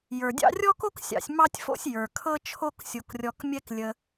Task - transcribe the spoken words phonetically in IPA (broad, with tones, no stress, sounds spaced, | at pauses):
j ə˞˩ dʲ ɑ̰˦ rʲ ɔ˥ k o˥ k sʲ ɑ̰˨ sʲ m ɑ˦ tʲ f o̰˦ sʲ j ə˞˩ kʰ ɤ˦ t͡ʃʰ o˦ k sʲ o˨ k rʲ ɔ˨ k mʲ ɛ˦ k lʲ ə˨